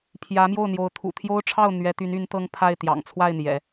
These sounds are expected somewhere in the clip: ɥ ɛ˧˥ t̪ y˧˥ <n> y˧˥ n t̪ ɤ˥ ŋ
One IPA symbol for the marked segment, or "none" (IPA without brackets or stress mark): n